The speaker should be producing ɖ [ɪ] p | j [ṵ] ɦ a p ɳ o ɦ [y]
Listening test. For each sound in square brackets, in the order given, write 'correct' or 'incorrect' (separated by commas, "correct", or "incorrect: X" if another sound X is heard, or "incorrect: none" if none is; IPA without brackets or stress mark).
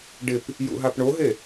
correct, correct, incorrect: e